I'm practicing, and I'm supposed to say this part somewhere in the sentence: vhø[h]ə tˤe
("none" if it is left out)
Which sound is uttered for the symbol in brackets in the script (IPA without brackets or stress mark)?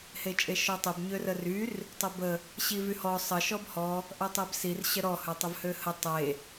h